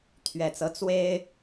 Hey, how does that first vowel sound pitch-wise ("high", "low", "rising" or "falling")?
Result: low